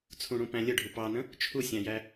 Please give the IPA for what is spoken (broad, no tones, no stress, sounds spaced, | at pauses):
t͡sʰ ũ ɽ ũ p æ̃ lʲ ə ɖʱ u p ɑ n ə̃ | t͡ʃʰ u sʲ æ̃ j æ